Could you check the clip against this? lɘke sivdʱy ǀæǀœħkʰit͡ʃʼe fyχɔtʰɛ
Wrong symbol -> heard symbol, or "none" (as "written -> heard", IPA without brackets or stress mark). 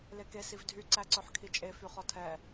ɘ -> e